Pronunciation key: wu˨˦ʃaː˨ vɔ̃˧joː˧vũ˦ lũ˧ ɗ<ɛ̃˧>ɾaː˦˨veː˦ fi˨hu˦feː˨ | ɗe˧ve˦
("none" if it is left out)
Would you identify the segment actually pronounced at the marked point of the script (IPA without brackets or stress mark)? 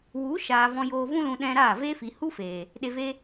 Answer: ɛ̃˧